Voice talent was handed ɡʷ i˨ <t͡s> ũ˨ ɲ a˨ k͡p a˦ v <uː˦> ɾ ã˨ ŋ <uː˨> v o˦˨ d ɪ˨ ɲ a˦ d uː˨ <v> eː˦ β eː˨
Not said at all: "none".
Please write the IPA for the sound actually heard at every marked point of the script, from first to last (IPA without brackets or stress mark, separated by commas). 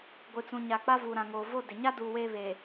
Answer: t͡s, uː˨, oː˨, w